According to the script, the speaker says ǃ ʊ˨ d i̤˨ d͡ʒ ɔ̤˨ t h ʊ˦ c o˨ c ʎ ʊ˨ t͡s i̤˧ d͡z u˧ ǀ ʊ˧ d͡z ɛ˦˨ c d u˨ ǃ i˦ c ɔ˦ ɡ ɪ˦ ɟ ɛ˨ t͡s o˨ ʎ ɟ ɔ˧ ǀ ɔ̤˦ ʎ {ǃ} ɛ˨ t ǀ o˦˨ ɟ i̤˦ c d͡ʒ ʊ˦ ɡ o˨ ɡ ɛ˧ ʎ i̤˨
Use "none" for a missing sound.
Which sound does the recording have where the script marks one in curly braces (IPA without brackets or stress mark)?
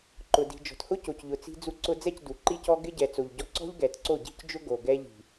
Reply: ɡ